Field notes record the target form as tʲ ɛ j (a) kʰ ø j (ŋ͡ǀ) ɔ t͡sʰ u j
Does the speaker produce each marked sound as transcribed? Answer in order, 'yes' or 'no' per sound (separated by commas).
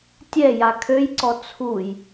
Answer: yes, no